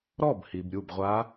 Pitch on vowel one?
falling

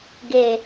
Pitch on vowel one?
low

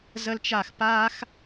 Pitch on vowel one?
high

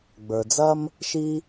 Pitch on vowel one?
low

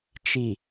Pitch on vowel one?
low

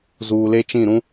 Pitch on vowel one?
low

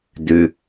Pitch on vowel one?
low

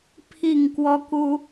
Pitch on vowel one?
falling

